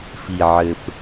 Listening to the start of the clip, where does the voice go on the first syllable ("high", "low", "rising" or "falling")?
low